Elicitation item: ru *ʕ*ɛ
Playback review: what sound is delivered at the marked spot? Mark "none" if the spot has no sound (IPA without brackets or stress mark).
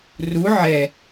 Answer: ʕ